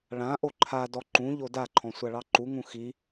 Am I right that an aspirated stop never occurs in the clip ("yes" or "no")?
no